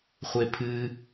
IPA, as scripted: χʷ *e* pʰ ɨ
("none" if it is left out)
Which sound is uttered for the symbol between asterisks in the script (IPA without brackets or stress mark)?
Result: e